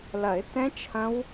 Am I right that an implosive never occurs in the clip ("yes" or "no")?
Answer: yes